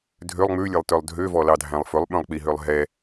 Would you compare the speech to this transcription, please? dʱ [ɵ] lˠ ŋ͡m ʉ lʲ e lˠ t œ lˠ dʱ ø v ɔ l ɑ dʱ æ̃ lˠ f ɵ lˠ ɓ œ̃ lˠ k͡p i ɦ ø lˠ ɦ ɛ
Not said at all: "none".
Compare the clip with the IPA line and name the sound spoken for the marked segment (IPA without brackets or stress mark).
ø